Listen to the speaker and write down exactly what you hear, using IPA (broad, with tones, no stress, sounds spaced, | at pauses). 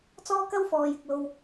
t͡s ɔː˥ k ɐ˥ w f ɔː˨ j ɪ˨ k̚ l o˨ w